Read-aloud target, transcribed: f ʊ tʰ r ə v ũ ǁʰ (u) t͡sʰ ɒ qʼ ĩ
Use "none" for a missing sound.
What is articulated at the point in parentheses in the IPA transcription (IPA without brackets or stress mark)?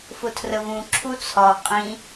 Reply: u